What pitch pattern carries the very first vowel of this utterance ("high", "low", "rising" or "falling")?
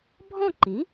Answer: falling